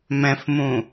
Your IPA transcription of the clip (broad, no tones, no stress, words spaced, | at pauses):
mɛ̃fmũ